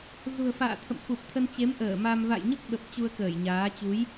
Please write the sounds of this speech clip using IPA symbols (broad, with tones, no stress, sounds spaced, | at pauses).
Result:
z ṳ˨˩ ə̯ f a̰ː˧˨ t̪ʰ ə̰˧˨ m f u˨˩ p̚ t̪ʰ ə˧ n t͡ɕ e˨˦ m ʔ əː˧˩ m a˧ m v a̰˧˨ j ɲ ə˦˥ p̚ ɓ ə˨˩ p̚ t͡ɕ u˧ ə̯ k əː˧˩ j ɲ aː˨˦ t͡ɕ u˨˦ j